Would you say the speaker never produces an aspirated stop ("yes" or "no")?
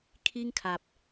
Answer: no